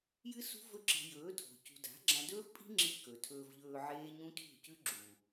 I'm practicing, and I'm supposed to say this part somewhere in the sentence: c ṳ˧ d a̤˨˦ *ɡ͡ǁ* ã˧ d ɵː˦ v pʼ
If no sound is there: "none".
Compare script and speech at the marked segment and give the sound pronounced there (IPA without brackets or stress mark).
ɡ͡ǁ